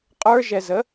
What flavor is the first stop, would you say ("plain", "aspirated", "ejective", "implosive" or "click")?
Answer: ejective